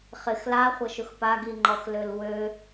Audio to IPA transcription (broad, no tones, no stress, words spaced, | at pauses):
χɪx laχʷɐʃʊx paɡiŋ͡ǃɔx lølwø